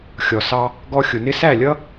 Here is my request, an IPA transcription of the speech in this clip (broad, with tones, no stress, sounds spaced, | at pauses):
xʲ ɔ˨ s ɑ˧ | ɡ ɔ˧ xʲ ʊ˨ n ɪ˦ s æ˦˨ lʲ ʌ˦